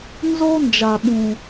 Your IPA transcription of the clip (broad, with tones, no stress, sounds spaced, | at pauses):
n z o˦ n d͡ʒ a˨ ɓ ũ˨